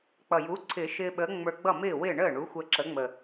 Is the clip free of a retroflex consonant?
no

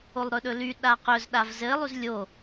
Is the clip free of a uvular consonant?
no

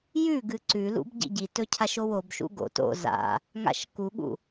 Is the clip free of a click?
no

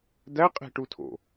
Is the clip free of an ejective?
no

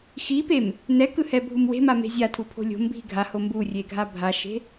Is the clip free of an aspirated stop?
no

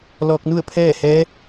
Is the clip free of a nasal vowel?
yes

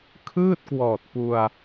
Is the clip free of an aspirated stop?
no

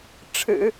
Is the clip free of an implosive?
yes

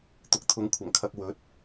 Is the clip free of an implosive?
yes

